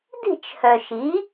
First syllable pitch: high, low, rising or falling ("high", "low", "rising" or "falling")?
falling